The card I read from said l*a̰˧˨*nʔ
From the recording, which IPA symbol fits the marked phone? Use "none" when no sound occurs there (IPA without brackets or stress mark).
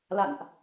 a̰˧˨